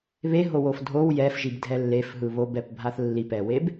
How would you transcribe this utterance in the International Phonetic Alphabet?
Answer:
βeɦowof dʱow jɛfʒibdʱɛ lːefɦɯ βobɛpbʱaθ lːipɛweb

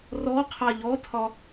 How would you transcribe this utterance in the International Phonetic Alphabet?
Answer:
rɔqʰa ʎɔtʰɒ

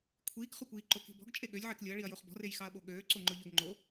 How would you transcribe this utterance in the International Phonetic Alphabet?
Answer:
kʷʰiːkχʊkʷiː ǃoki̤bɔ̤ɡ t͡ʃʼeɠølʲ ʕeklʲʊɐ̯ɭiɐ̯joχ bɔ̤rejxɑɐ̯ɓo ɠøːǀoŋ͡ǃʊʎøɡ ŋ͡ǃo

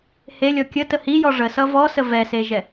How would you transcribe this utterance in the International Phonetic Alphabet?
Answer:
helʲɔ kʲətə hijɔ ʐəsʌ vɔsə vɛseʒɛ

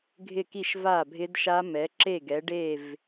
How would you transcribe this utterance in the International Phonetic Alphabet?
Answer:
ɡʱɪ˥˨ki˥˨ʃ va˥˨bʱɪ˦˥dʃa˦˥mɛ˨˥ ǁe˥˨ɡɛ˨˥ ɖe˥˨v

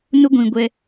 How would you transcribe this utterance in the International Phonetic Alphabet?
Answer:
nʊ˦ɡʷĩ˨ɡʷɛ˦

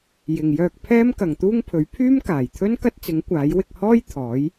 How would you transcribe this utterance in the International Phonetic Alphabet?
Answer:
jɪ˨ŋjœː˧k̚ pʰɛː˥mkɐ˨ŋt̪uː˥ŋpʰɵ˨˥ɥ pʰyː˥mkaː˨˩jt̪ʰɵ˥n kɐ˥t̚t͡sɪ˨˥ŋ kʷaː˨˥jwɪ˧k̚ hɔː˥j t̪ʰɔː˨˥j

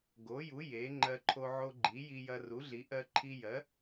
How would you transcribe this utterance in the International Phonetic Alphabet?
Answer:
ɡo˩˥ju˩˥ je˩˥ ŋ͡ǃɜ˧ǃʰo˧ʕo˧ɡ͡ǃi˩˥ ji˧jɐ˧ru˩˥ɮi˩˥ ʔɜ˧ǃʰi˧ jɜ˩˥

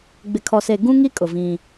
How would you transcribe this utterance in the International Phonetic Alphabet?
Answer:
ɡ͡bɪ˨kʰɔ˨se˨ ɡũ˦ŋi˦kʼʊ˨ vĩ˦

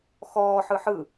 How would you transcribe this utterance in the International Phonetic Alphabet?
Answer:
xɔːħ ɯħɯ

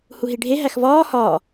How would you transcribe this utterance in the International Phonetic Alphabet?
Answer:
huɦiɖʱe ɦæxvɒː hɒː

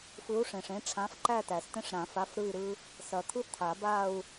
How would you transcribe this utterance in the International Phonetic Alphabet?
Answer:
fɯ˨˥u̯ʂẽ˩ʂẽ˨˥ ʈ͡ʂʰã˨˥fǃæ˥˧tæ˩stẽ˥˧ʂ ɾã˨˩˦fa˨˥f ɾɯ˥˧i̯ɾɯ˥ | sɐ˨˩˦t̪ʰɯ˥ t̪ʰa˨˩˦ba˥˧u̯

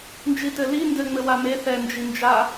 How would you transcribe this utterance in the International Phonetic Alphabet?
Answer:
nd͡ʒitɘli ndɘ ŋ͡mɘwame θɛ nd͡ʒind͡ʒa

